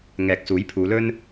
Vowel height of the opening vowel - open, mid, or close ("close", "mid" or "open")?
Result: mid